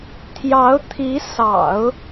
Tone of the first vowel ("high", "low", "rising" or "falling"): rising